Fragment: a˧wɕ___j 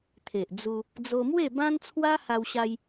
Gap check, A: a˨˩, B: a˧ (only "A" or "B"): B